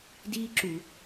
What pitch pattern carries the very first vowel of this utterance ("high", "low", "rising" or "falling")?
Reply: high